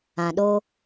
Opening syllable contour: low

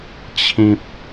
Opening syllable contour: high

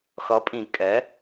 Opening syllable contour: rising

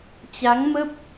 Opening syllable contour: rising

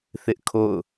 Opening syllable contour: high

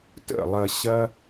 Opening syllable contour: falling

